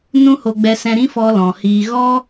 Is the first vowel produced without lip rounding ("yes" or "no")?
no